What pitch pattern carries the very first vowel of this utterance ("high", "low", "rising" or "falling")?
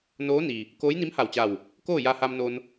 rising